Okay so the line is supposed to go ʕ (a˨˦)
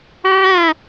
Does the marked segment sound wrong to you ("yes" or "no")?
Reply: yes